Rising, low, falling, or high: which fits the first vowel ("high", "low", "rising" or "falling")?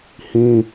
high